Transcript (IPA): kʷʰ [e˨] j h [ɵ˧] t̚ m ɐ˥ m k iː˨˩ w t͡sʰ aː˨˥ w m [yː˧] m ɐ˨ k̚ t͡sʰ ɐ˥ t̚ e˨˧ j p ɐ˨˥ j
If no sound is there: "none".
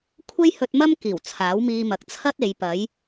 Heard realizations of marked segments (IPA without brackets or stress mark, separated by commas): e˥, ɵ˧, iː˧